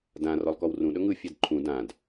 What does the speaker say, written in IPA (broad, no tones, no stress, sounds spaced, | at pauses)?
d ã r ɔ lˠ k ɔ w r ũ ɗ ɵ ŋ ɯ fʲ ɛ d ǃʰ ũ d ã d